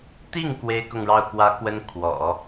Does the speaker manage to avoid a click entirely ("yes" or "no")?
yes